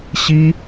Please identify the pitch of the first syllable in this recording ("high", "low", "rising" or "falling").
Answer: high